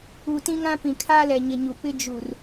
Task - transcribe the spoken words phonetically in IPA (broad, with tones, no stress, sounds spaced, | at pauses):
u˨ t ĩ˦ ŋ ã˦ p ĩ˨ kʰ aː˦ l ɛ˨ ɲ ɪ˨ ɲ u˨ p ɪ˦ d͡ʒ u˨ r